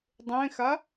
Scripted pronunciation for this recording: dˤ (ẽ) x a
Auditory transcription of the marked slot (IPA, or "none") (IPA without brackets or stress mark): ẽ